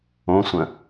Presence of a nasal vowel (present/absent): present